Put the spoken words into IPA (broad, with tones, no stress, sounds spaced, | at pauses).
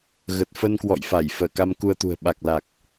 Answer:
ɣ ə˨˩ t̚ f ə˧ n k w ɔ̰˧˨ j f a˧˩ j f əː˧˩ k a˧ m k u˧ ə̯ t̪ ṳ˨˩ ə̯ ɓ a˨˩ k̚ l a˨˩ k̚